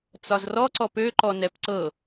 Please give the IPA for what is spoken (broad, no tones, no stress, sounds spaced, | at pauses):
t͡s ɒ z r ɔ ǀ ɔ p ø ǃ ɔ n ɛ p ǀ ɤ